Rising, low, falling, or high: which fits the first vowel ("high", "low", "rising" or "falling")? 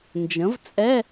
rising